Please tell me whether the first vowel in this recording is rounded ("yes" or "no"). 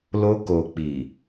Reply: yes